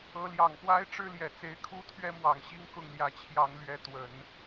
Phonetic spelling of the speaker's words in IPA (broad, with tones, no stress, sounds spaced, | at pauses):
ɤ˧˥ l j ɑ˨˩ ŋ p w a˥ ɪ̯ ʈ͡ʂ ɻ̩˥ l j ɛ˨˩ t͡s e˧˥ ɪ̯ kʰ u˥ t̪ʰ ɥ ɛ˥ m w ɑ˨˩ ŋ ɕ i˥ ŋ k ʊ˥˩ ŋ l j ä˧˥ t͡ɕʰ j ɑ˧˥ ŋ l ɥ ɛ˧˥ t̪ w ə˨˩˦ n